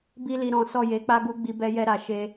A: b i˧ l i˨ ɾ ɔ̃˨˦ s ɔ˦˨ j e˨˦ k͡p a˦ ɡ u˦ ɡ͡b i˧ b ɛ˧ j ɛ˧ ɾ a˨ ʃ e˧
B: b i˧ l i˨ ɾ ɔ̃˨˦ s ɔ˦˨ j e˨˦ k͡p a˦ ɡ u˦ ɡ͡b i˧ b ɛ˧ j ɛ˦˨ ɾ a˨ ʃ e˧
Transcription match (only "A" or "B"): A